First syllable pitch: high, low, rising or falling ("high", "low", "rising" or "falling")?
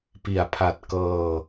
low